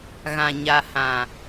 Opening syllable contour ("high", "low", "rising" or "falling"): low